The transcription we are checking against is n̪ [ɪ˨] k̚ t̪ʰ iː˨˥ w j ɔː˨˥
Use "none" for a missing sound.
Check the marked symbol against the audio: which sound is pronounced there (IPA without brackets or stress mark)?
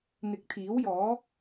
ɪ˨˥